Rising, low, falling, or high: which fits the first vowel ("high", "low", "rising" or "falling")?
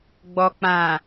low